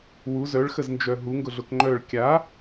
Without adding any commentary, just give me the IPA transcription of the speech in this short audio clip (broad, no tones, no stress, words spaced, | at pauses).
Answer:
wu zœɭxəznd͡ʒœ ɦuŋɡʊɮʊk ŋ͡ǃœɭ kʲa